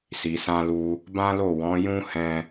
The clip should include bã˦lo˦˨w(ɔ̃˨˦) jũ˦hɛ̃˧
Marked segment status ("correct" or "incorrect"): correct